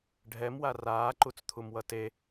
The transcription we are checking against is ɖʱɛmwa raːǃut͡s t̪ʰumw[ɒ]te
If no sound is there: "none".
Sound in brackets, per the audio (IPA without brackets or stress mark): ʌ